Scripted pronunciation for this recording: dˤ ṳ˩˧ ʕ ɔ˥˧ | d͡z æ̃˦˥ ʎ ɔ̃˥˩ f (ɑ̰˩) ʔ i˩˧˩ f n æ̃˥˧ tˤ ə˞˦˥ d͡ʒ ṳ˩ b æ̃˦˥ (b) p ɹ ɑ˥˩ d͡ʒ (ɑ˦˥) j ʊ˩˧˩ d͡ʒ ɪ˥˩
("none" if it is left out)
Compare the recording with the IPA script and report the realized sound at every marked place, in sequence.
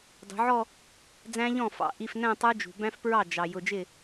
ɑ̰˩, f, ɑ˩

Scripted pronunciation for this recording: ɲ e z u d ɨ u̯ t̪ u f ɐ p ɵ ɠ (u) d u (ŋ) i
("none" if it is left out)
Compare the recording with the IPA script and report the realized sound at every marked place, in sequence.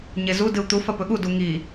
u, ŋ

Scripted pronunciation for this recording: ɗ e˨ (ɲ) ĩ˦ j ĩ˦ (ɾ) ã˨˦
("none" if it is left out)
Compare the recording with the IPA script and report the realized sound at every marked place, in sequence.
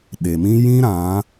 m, ɾ

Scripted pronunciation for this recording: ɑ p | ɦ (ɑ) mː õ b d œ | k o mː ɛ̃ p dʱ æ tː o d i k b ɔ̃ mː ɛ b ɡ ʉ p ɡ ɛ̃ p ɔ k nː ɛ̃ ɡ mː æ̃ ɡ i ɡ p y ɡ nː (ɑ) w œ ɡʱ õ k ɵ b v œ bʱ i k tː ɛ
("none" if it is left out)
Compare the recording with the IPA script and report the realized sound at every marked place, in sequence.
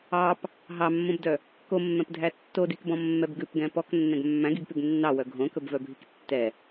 ɑ, ɑ

